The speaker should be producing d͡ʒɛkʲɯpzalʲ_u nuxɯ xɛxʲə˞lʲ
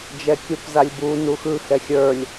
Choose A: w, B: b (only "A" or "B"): B